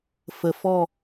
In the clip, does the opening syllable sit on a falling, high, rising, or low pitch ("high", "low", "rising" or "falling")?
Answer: low